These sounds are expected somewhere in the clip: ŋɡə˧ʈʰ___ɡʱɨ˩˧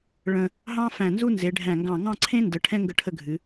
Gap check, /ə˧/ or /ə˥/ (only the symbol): ə˧